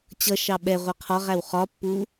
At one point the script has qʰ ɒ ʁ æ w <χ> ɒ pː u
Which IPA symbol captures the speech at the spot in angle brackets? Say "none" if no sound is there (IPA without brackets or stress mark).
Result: χ